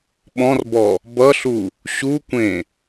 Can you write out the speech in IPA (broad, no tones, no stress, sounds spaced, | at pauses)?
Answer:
ɓ ɔ̃ r b ɔ | b ʌ ɬ u | ɕ u kʷ ẽ